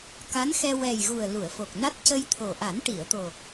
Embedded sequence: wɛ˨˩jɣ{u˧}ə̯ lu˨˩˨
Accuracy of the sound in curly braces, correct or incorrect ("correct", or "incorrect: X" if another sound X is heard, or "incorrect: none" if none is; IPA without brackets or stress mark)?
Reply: incorrect: u˨˩